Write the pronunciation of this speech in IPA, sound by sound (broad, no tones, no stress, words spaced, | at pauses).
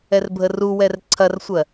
ɛrbʱəruwɛr ǀʰɐrsʷɜ